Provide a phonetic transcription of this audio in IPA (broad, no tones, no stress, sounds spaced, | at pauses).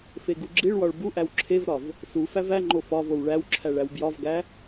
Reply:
f e ɡ u ɡ͡ǁ i ɭ w ɒ ɭ b u ʔ æ w ǁʰ e v ɾ ɒ v | s u f æ v æ ŋ͡ǃ o f ɒ v o w ɭ æ w ǁʰ æ ɭ æ w b j ɒ v ɡ æ